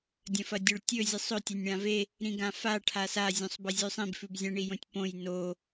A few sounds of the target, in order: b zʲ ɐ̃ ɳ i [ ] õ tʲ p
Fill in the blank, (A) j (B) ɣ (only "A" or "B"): A